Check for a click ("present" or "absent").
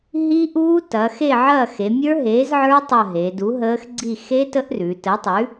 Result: present